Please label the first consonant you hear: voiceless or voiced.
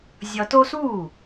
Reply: voiced